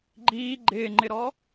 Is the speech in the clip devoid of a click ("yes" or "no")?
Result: no